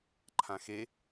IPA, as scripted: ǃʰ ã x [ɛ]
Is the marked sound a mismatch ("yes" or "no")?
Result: yes